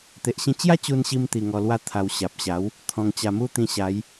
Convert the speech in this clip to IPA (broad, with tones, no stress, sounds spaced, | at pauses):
t̪ e˨ ʔ ɕ ĩ˧ t͡ɕ j a˦ t͡ɕ u˧ n ɕ i˧ m t̪ i˧ ŋ ɔ˧ l w a˦ t̪ʰ a˧ w ɕ a˨ p̚ ɕ a˨˦ w | t̪ʰ ɔ̃˧ ŋ t͡ɕ a˧ m u˦ t̪ ĩ˧ ɕ a˨˦ j